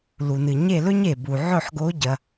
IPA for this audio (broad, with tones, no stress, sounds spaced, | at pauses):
l u˩ n ɨ˩ ɲ e˦˨ l ɵ˦˥ ɲ e˩ b u˩ ʕ ɵ˦˨ ħ ɡ o˨˦ ɟ ɐ˩